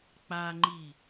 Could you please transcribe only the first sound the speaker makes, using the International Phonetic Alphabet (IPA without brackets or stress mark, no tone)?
k͡p